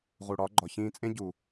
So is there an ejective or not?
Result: yes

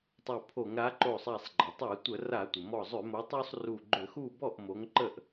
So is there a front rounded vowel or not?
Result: yes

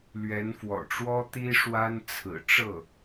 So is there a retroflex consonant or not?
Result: yes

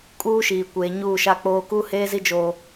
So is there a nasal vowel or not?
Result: no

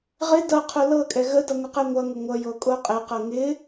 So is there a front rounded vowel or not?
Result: no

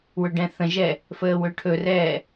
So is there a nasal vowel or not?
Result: yes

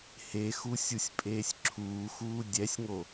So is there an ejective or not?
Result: yes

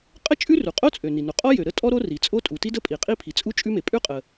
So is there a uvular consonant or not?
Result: yes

